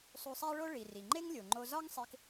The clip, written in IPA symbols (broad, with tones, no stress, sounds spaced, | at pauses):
sˤ u˧ sˤ æ˥ ɭ o˥ ɭ i˩ r i˩ ŋ͡ǃ e˥ ŋ lʲ o˩ ŋ͡ǃ o˧ z ɒ˥ ŋ sˤ e˧ k